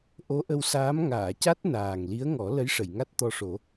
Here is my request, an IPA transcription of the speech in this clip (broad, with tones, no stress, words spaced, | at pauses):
ʔo˧˥ʔə˧wsaː˧˥m ŋaː˨˩˨ca˦˥t̚ naː˨˩ŋ li˧˥ə̯ŋɔ˨˩˦ lə˧˥jʂə˨˩˨jŋa˦˥t̚ t̪ɔ˧ʂo˨˩˦